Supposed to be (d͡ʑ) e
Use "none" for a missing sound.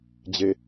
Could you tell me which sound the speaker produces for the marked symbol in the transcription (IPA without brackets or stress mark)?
d͡ʑ